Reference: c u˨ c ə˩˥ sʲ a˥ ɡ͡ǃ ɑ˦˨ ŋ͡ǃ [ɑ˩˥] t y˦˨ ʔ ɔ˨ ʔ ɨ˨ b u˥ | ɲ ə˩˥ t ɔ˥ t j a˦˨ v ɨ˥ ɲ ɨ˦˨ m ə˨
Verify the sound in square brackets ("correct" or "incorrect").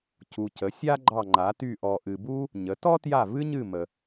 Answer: incorrect